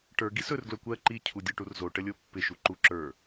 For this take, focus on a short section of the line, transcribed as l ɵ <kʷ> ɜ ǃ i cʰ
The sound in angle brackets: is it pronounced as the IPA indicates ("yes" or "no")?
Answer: yes